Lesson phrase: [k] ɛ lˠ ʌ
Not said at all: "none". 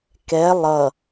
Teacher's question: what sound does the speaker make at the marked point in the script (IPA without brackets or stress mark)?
k